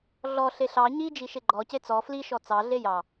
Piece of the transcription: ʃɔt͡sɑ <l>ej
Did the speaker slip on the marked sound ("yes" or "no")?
yes